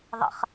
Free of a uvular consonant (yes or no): no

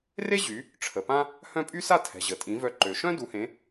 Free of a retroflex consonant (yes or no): no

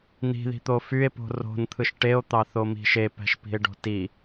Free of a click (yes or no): yes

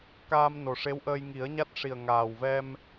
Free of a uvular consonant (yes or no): yes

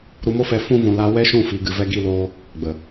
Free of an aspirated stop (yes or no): yes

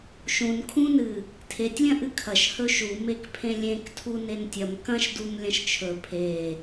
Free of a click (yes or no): yes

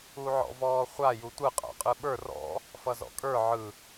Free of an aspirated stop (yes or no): yes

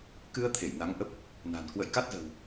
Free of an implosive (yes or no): yes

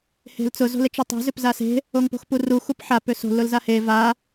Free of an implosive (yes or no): yes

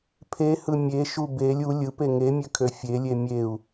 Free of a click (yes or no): yes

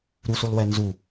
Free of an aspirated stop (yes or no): yes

